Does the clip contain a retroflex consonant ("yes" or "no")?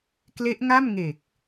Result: no